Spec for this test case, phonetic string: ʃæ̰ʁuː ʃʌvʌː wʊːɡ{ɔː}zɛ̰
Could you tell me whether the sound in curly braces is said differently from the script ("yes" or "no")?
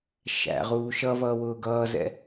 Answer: yes